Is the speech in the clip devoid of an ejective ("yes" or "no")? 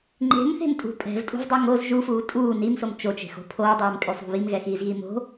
no